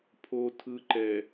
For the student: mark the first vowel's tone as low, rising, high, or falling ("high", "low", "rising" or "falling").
low